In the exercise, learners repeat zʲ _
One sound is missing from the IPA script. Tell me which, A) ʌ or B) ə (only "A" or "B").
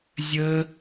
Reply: B